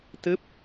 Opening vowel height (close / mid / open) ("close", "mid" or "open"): close